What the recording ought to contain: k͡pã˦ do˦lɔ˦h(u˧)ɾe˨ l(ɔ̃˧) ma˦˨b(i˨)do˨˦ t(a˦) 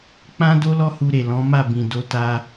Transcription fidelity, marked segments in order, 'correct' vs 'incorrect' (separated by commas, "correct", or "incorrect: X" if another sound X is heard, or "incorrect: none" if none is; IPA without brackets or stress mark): correct, incorrect: ɔ̃˨˦, incorrect: ĩ˨, correct